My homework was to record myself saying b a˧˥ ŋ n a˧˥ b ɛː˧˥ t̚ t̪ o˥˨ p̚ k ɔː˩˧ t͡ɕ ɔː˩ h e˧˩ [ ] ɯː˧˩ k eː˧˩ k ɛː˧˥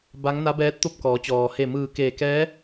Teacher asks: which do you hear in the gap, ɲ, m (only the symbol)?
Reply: m